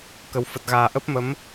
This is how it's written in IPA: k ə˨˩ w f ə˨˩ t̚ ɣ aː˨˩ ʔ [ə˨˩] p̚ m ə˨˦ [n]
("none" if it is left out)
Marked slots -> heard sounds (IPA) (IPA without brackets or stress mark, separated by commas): ə˦˥, m